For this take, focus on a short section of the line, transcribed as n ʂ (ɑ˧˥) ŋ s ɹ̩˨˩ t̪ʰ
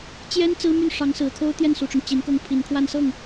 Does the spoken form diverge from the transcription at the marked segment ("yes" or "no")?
no